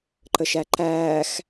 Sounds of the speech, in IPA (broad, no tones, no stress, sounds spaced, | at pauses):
ǃ ə ʃ æ ǃ æː x